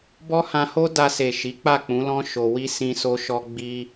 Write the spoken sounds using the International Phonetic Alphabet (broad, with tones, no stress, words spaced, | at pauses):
bɔ˦hã˧ho˦ da˧se˨ ʃi˨˦k͡pa˦˨k͡pũ˨˦lɔ̃˦ ʃo˧wi˦ sĩ˧so˧ʃɔ˧ ɡ͡bi˧